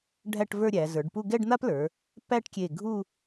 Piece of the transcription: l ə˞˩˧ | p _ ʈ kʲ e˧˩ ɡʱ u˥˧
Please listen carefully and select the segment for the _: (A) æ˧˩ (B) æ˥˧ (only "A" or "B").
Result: B